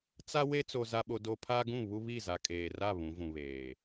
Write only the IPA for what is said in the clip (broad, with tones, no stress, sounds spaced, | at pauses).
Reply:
t͡s a˦ w e˦ t͡s o˦ z a˦ ɓ o˦ d o˦ pʰ a˦ ɡ ũ˦˨ β u˦ β i˦˨ z a˨ kʼ eː˨ r a˦˨ β ũ˨˦ v ũ˨ β eː˨